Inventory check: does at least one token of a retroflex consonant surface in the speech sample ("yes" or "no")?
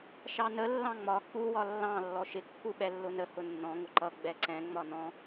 no